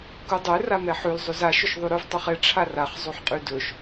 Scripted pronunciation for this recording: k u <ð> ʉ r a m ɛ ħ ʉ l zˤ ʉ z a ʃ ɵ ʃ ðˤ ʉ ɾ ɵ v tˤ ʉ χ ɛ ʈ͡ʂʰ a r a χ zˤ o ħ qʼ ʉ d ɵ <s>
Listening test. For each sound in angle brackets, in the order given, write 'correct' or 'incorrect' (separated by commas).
incorrect, incorrect